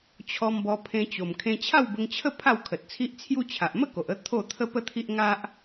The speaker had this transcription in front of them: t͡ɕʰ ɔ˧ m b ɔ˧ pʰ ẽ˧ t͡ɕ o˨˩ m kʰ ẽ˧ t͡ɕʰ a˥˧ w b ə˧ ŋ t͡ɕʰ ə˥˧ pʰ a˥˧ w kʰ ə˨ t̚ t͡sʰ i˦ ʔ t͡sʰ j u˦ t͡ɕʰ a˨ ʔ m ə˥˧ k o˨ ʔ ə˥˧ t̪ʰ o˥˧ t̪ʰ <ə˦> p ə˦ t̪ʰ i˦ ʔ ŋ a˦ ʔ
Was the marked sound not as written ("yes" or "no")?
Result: no